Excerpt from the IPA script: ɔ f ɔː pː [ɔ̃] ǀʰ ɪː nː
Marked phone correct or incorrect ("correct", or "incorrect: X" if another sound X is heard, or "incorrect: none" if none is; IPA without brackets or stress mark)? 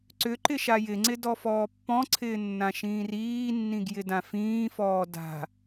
correct